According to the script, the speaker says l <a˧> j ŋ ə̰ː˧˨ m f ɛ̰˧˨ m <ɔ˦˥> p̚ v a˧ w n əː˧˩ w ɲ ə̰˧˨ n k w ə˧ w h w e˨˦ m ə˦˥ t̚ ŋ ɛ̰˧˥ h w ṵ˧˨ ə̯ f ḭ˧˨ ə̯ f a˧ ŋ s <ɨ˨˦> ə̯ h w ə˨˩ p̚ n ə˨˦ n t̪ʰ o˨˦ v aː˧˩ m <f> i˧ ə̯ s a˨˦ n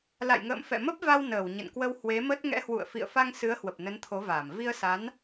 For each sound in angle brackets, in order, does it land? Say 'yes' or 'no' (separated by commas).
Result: no, no, yes, no